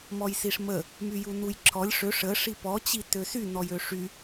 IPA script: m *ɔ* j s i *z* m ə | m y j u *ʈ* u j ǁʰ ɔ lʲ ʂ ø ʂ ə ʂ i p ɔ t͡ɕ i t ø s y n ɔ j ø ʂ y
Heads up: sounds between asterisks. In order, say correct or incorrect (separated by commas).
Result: correct, incorrect, incorrect